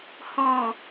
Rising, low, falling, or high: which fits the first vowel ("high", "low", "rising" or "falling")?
low